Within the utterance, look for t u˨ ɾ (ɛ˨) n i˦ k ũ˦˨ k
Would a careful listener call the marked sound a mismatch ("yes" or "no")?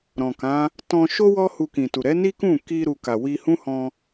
yes